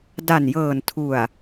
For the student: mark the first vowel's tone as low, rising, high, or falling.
low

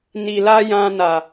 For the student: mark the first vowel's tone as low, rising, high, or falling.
low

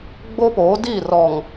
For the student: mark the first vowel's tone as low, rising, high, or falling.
high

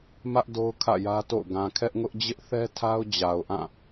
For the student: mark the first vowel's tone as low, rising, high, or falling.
high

